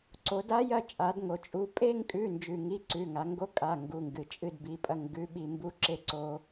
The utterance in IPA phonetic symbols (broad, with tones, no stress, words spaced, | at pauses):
ǀo˩˧da˧˥jɐ˦˨t͡ʃʼa˩˧d ŋo˩t͡ʃʼu˩˧˩ pʼe˦˨ŋkʼʉ˩˧˩nd͡ʒʉ˩ŋi˩˧˩ ǀʉ˩˧˩ŋa˩˧ŋɡo˧˥kʼa˩˧˩ ŋɡu˩˧˩ŋɡɨ˩t͡ʃʼɨ˦˨d bi˩˧˩pʼɐ˦˨ŋ ɡʉ˧˥ɓi˦˨ mbu˧˥ ǁe˥ǀo˧˥